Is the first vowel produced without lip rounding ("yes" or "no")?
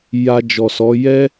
yes